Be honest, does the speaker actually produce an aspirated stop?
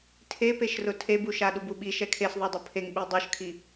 yes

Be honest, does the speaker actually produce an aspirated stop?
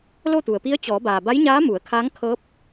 yes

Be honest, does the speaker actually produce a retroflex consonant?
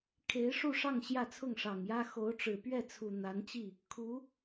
yes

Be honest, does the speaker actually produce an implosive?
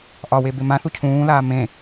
no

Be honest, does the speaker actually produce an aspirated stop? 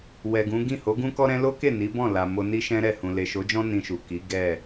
no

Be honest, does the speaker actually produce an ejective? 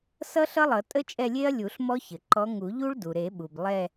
yes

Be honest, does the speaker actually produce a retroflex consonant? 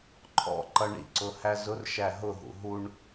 yes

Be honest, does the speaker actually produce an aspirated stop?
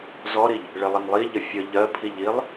yes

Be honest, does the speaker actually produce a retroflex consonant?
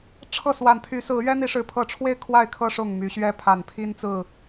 yes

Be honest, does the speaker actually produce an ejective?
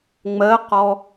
no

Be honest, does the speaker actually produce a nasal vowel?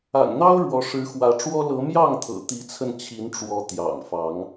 no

